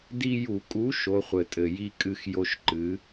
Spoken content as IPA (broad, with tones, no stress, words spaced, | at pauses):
di˦ju˧˩˧ kʼu˨˥ ʃo˨˥χʷɘ˨˩tʼɘ˨˩ ji˦ kʼɨ˦x jo˦ʃǃɨ˨˥